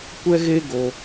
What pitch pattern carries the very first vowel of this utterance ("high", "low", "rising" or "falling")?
high